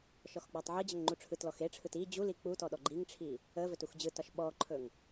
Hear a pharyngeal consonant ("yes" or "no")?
yes